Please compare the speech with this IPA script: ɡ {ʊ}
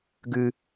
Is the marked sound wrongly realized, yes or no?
yes